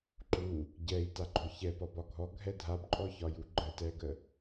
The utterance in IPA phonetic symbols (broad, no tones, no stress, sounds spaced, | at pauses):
ǃ u | ɟ ɛ i̯ t a ɡ͡ǃ ɔ ç ɛ p ɒ b ɒ ɡʱ ɔ ɡʱ ɛ dʱ a b ǃʼ ɔ ç ɒ j u ɡ͡ǃ ə t ɛ ɡ ə